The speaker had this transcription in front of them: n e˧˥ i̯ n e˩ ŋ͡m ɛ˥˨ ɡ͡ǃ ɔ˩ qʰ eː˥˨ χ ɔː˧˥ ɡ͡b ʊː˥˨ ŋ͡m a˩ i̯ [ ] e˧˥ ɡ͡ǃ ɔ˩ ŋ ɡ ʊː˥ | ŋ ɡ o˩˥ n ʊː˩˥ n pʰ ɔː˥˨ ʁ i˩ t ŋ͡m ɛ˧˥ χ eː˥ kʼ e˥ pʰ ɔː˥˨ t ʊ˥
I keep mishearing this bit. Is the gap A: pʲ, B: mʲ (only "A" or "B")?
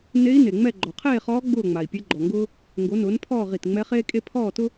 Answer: A